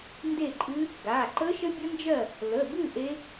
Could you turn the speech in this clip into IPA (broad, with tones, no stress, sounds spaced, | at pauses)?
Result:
n d e˥˨ ǃʼ ɨ˦˥ | ɡ a˩˧˩ ǃ ə˦˥ ʃ ə˦˥ bʲ ə˦˥ n d͡ʒ ɜ˥˨ | l ə˩˧˩ b ɨ˥˨ ʔ e˦˥